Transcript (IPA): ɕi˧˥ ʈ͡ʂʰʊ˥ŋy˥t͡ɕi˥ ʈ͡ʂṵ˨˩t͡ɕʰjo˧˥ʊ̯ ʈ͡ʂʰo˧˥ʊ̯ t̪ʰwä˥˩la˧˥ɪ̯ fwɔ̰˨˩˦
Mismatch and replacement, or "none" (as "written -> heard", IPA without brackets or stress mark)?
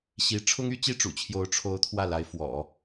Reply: none